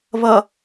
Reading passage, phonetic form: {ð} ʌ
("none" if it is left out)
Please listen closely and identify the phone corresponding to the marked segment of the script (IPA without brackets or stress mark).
β